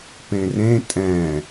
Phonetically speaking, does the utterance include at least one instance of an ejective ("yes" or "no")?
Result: yes